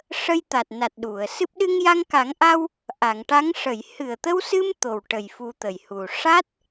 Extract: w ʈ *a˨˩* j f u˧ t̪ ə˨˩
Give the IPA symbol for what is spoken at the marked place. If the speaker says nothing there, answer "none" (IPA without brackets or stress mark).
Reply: ə˨˩